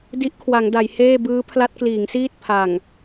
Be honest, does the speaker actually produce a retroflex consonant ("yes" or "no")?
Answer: no